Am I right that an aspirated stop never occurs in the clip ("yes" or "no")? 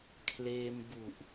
no